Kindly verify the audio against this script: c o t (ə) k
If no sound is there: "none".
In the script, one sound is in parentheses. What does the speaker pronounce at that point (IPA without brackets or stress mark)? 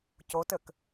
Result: ə